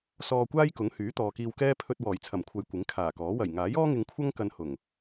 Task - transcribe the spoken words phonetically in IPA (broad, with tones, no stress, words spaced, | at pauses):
sɔː˧kʷaː˥jkʊ˨˥ŋhyː˨˥ t̪ɔː˨kiː˧wkɛː˥ pʰɵ˧t̚ wɔː˨˩jt͡sʰɐ˨˩mkʷʰɐ˨j kʷɪ˨˥ŋkʰaː˨˩kɔː˨˥ wɐ˨˩jŋaː˨˥jɔː˥ŋɪ˨˧ŋ kʷʰɐ˥ŋkɐ˨˧n hʊ˨˩ŋ